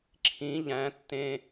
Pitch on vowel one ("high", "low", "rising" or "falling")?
rising